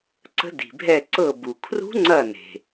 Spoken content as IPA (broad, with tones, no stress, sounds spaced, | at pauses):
ǀ ə̤˧˥ d i̤˩ bʱ ɛ˧˩ ǀ ɤ˧˩ b u˩ kʰ r ṳ˧˥ ŋ͡ǀ ɐ˧˩ n e̤˩